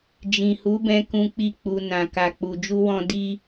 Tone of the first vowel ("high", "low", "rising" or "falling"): low